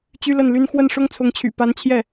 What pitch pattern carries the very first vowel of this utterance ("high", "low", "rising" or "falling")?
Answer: high